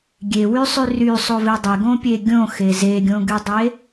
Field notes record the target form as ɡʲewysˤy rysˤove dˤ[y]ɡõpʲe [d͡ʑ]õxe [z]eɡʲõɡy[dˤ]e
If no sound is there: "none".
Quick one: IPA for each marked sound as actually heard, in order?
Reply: e, ɡʲ, z, dˤ

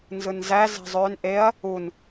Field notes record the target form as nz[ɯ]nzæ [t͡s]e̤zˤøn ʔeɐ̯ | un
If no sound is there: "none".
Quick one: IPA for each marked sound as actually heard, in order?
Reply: ɯ, z

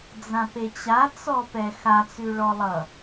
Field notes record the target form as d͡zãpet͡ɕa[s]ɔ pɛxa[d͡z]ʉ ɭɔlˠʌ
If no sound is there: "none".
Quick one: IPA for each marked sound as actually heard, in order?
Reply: t͡s, t͡s

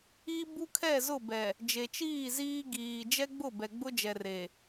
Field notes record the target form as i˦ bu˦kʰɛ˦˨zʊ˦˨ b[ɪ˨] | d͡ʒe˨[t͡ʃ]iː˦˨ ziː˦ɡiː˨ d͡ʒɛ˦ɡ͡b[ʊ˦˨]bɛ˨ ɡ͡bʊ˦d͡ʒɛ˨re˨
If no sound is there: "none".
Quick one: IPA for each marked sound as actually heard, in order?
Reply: ɛ˨, t͡ʃ, ʊ˦˨

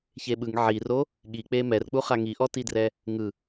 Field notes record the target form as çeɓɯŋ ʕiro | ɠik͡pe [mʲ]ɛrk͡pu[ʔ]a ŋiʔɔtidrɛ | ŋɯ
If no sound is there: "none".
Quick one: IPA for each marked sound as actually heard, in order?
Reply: m, χ

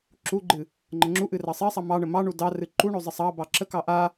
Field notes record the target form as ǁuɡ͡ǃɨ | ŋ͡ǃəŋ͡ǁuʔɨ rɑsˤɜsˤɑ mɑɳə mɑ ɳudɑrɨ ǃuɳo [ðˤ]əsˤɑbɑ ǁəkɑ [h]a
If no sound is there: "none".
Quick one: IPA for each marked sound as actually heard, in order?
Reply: zˤ, ʔ

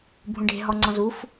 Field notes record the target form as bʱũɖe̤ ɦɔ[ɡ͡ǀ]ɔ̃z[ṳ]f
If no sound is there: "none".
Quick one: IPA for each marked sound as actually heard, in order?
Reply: ŋ͡ǀ, u

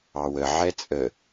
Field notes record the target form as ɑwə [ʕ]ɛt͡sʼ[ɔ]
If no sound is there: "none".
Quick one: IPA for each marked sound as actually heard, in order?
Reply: ʕ, ə

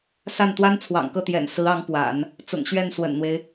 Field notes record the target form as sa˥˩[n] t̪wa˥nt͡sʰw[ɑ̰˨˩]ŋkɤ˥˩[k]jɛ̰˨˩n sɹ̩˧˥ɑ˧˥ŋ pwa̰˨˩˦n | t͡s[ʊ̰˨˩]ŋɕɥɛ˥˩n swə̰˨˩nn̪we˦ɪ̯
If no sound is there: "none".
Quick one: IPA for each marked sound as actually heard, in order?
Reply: n, ɑ̰˨˩, t̪, ʊ̰˨˩

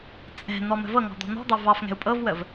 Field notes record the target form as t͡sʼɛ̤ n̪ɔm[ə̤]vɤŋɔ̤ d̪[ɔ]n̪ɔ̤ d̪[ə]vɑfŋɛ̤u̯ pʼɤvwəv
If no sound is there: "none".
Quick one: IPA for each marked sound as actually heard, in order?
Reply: ə̤, ɔ̤, ɑ

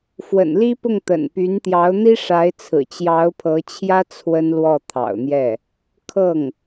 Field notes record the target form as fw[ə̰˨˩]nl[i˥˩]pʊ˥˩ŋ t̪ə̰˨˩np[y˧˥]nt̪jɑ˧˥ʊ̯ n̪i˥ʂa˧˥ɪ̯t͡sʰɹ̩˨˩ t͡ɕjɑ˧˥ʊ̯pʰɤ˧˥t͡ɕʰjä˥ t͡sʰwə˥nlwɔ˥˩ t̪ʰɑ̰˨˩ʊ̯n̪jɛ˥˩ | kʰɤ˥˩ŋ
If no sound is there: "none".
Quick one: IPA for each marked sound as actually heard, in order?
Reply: ə̰˨˩, i˥, y˧˥

